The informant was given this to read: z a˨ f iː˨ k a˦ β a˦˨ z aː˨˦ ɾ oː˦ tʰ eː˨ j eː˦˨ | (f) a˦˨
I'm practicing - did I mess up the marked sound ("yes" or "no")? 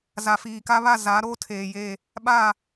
yes